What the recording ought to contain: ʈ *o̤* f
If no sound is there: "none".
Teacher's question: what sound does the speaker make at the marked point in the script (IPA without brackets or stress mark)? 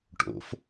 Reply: o̰